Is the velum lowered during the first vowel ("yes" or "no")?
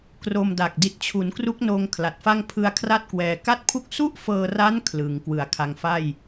no